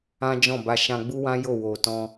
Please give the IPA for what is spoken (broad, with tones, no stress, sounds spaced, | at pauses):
ã˦ d͡ʒ ɔ̃˦˨ b a˧ ʃ ã˧ ɡ͡b u˦ w ã˦ j o˦˨ w o˨ t ɔ̃˧